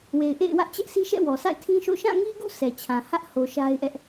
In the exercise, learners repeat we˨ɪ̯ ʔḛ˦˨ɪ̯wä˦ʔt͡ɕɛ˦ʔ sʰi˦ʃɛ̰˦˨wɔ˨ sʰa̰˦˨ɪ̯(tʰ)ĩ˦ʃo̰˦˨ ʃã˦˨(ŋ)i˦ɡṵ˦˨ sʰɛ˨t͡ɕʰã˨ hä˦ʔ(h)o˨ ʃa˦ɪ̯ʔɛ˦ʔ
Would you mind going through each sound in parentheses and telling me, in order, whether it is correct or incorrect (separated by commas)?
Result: correct, correct, correct